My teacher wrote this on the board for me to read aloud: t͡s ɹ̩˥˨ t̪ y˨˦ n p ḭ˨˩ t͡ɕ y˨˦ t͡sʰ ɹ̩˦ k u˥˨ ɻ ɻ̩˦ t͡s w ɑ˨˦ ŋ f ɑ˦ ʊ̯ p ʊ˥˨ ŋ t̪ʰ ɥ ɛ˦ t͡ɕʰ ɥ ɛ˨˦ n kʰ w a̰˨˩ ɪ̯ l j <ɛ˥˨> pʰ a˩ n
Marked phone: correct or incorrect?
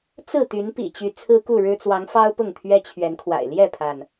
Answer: correct